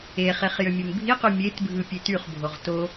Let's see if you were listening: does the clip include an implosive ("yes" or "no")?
no